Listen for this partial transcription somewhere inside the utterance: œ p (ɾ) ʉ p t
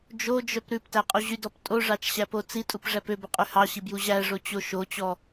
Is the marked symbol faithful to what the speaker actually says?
yes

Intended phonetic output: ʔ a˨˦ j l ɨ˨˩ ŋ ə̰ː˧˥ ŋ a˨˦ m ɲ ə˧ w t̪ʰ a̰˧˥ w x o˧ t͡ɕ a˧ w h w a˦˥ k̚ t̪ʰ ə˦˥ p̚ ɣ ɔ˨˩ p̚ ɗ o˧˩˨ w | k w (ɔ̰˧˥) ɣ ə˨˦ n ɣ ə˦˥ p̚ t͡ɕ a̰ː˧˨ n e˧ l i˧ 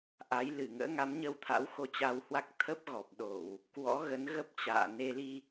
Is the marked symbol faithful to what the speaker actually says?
yes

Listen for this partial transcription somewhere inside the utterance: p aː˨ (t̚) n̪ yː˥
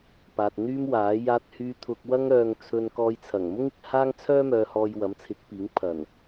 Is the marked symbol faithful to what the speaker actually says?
yes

